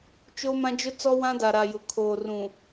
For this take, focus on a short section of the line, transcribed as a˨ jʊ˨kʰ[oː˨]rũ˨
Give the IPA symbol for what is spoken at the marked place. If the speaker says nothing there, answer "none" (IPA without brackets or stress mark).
oː˨